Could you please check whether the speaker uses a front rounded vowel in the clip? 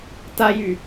yes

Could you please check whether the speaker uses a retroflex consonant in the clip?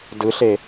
no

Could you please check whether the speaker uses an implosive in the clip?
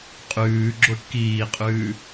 no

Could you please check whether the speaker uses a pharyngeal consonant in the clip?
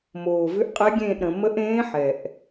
yes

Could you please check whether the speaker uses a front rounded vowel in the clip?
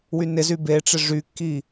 yes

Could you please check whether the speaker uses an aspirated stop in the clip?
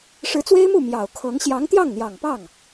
yes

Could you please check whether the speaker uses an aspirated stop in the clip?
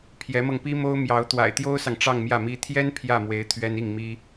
yes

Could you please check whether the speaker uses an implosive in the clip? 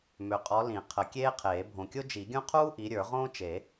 no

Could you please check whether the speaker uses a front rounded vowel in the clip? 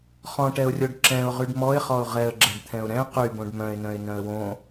yes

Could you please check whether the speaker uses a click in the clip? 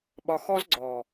yes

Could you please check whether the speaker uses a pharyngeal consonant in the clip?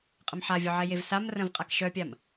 yes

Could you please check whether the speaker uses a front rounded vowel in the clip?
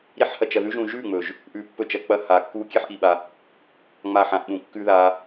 no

